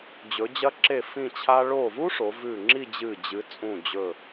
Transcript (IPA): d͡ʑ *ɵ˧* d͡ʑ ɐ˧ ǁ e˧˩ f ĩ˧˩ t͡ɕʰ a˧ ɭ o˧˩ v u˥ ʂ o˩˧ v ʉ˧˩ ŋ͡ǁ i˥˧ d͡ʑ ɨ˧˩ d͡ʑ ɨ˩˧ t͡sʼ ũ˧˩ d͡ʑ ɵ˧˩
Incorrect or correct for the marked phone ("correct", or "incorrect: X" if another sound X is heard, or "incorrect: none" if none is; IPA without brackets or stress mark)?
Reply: incorrect: ɵ˩˧